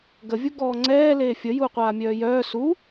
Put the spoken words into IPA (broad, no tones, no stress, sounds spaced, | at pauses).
ɡ ə vʲ u ɡ ɔː ŋ͡ǀ ɛː l eː fʲ ə j uː qʷ aː mʲ œː j œː s u